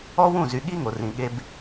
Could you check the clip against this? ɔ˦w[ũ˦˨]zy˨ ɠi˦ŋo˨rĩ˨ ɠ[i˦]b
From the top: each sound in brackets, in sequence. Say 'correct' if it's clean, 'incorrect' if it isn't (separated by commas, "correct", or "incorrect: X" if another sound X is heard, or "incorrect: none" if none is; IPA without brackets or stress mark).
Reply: correct, incorrect: e˦